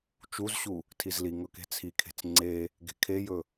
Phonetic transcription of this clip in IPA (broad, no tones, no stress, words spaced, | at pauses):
t͡ʃuzɕu | tʰizliŋɵ ke̤t͡sʰikʰe̤t͡s ŋ͡ǀe | ɡe̤kʰejɵ